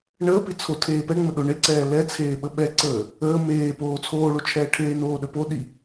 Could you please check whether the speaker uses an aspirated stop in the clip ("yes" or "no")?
yes